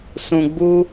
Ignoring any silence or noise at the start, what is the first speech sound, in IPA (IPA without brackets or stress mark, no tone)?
s